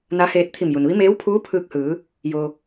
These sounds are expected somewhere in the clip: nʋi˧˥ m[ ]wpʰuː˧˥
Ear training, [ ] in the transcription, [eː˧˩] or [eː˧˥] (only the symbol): eː˧˥